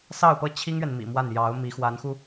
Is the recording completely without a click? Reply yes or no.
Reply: yes